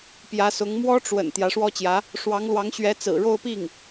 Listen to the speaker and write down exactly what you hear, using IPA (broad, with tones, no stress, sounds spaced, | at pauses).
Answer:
p j ä˧˥ s ʊ˧˥ ŋ m w ɔ˥ ʈ͡ʂ w ə̰˨˩ n t̪ j ä˧˥ ʂ w ɔ˥ t͡ɕ j ä˧˥ | ʂ w ɑ˧˥ ŋ l w ɑ˧˥ ŋ ɕ ɥ ɛ˧˥ t͡s ɹ̩˨˩ ɻ o˥˧ ʊ̯ p i˥˩ ŋ